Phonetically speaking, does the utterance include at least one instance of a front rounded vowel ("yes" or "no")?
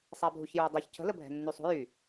yes